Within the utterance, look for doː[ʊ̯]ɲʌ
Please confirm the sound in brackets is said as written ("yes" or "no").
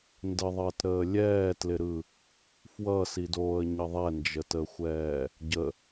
no